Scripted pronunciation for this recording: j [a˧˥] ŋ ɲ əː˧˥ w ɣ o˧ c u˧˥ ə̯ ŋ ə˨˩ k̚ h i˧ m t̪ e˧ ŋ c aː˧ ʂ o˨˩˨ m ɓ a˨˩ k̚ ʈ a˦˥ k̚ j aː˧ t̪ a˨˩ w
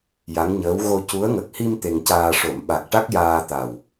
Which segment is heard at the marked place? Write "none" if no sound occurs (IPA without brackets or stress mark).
a˧˥